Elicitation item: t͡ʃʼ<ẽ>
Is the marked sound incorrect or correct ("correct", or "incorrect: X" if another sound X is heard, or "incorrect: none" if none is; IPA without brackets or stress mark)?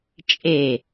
incorrect: e